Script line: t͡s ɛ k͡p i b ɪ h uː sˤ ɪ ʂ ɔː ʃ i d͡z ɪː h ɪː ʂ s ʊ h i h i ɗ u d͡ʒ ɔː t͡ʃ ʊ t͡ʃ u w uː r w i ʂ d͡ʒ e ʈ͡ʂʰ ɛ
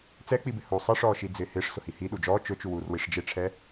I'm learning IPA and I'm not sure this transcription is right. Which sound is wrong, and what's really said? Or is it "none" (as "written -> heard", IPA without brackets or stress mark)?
none